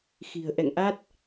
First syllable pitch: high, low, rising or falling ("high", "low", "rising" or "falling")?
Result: low